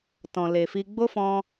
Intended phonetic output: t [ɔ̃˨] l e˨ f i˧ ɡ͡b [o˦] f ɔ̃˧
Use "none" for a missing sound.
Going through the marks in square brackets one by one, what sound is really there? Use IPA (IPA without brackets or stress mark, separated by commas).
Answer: ɔ̃˨, o˦